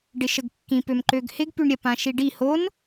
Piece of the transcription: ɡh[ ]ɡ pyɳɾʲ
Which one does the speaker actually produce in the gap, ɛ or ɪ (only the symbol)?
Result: ɪ